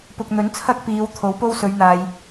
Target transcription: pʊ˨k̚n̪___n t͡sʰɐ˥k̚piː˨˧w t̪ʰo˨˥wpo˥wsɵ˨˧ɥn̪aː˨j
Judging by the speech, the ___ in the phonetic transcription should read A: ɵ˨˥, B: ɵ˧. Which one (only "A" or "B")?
A